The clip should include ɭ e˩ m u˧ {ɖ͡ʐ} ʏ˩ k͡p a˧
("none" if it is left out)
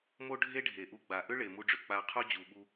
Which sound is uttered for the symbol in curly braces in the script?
ɖ͡ʐ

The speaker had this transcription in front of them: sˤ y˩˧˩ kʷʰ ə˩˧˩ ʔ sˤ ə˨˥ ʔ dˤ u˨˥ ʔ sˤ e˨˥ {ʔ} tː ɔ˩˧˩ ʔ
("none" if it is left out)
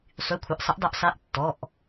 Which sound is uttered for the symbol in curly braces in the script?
ʔ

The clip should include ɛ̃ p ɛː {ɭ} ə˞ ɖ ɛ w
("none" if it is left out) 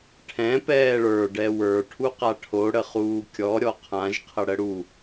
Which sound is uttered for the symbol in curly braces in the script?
ɭ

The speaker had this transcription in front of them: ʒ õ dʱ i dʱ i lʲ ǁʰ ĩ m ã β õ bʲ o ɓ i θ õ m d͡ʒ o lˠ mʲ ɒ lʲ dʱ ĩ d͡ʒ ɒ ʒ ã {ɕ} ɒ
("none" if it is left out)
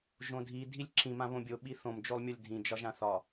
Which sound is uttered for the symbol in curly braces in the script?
θ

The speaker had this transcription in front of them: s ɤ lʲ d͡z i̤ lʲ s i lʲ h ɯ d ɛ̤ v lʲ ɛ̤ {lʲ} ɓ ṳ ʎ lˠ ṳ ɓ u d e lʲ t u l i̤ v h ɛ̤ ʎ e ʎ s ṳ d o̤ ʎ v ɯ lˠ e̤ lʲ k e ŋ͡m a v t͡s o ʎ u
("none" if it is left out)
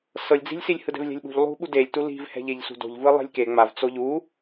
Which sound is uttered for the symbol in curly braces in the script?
lʲ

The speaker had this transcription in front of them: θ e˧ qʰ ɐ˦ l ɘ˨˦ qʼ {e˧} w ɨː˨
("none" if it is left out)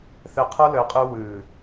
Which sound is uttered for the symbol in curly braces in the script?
ɨ˧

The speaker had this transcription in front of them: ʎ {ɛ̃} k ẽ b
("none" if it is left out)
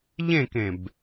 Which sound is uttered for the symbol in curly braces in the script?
ẽ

